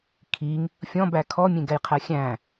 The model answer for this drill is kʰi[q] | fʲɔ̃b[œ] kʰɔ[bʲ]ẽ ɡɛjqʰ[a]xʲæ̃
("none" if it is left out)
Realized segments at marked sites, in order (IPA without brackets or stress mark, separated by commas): ŋ, æ, mʲ, æ